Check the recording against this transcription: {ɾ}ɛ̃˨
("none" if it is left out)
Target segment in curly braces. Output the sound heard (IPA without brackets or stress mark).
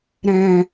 ɾ